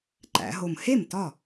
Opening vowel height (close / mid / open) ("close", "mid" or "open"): open